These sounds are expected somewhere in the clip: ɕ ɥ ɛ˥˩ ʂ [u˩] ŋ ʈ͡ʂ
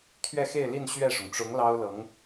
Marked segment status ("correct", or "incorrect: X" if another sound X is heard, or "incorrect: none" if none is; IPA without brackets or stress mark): incorrect: ʊ˩